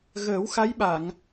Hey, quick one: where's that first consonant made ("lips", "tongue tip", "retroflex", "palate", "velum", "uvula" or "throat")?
velum